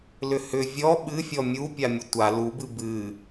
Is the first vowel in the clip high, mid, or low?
high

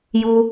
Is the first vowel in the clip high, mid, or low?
high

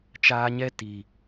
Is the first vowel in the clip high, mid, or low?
low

